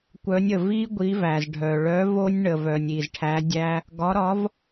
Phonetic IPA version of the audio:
kʷ œ˨˥ nʲ ə˩ v i˦˥ ɡʷ i˨˥ v æ˩ z ɖʱ œ˩ ɭ œ˨˥ v o˦˥ nʲ ɳ ə˩ v œ˩ nʲ i˩ z ʈʰ æ˨˥ dʲ æ˦˥ | ɡ ɒ˨˥ ɾ ɒ˨˥ v

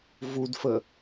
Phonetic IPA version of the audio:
v u d f ə

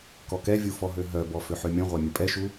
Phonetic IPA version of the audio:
k ɔ k ɛ vʲ u f ɔ ɦ ø ɦ œ b ɔ f ø ħ ø mʲ ɔ̃ ʁʷ a mʲ ə pʼ ɛ ʃ u

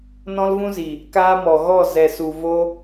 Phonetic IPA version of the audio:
n ɔ̃˦ l v ũ˦ z i˨ | k aː˦ m ɔ˨ ɣ ɔ˦˨ z ɛ˨ s u˨ v o˦

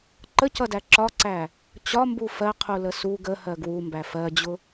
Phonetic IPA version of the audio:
ǃ ə c ʌ d æ ǁ ɒ ǀ æ | t͡ɕ ɒ m b u f ɜ qʰ u l ə s u ɡ ə h ɜ ɡ w u m b æ f ɜ d͡ʑ ʊ

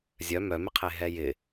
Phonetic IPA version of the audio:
zʲ œ m œ m ɪ qʰ e ɦ ɛ j ɪ

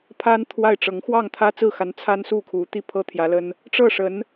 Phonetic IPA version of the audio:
pʰ a˥ n t̪ʰ w a˥˩ ɪ̯ ʈ͡ʂ ɤ˧˥ ŋ x w ɑ˥˩ ŋ t̪ʰ ä˥ t͡s ɹ̩˥˩ x a˧˥ n t͡sʰ a˥ n s u˥˩ kʰ u˧˥ t̪ i˥˩ pʰ ɤ˥ t̪ʰ j ä˧˥ l ə˥ n | ʈ͡ʂ ɤ˥˩ ʂ ə˧˥ n

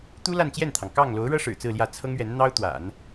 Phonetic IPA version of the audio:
t̪ u˥ l a˥˧ n t͡ɕ j ɛ˥˩ n t̪ʰ ɑ˩ ŋ k ɑ˥˩ ŋ l o˧˥ ʊ̯ ɻ ɤ˥ ʂ ɻ̩˨˩ t͡s ɹ̩˥˧ l j ä˥˩ t͡sʰ ɤ˥ ŋ ɥ ɛ˧˥ n n̪ ɑ˥ ʊ̯ t̪ w a̰˨˩˦ n

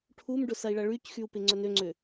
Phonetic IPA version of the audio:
ʈʰ u m ɖ ʊ s ɐ i̯ ɭ ɐ ɭ y c x y u̯ p ɪ ŋ͡ǀ œ n ø ŋ͡ǀ ø

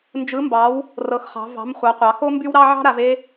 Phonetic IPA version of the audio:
n d͡ʒ ɯ˨˦ m b ɑ˨˦ w | r ɤ˨˦ x χ ɑ̤˨˦ v ɑ̤˨˦ m χʷ ɑ˨˦ qʷ ɑ˨˦ x o˥ m b y˥ w ɾ ɑ˥ ʕ ɑ̤˥ ɾ a˨˦ v e˥

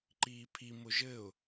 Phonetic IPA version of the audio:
ǃ iː pʰ i m ʊ ʒ ɘ ʊ̯

